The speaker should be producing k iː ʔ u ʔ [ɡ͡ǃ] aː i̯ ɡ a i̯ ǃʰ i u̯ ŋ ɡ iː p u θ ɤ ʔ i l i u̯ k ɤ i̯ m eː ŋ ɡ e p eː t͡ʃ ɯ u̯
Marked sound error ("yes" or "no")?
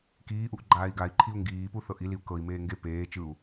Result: no